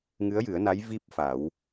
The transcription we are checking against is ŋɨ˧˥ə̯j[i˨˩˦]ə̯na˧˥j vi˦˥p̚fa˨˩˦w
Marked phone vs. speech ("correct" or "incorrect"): incorrect